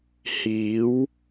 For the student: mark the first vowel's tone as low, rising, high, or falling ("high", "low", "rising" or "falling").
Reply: rising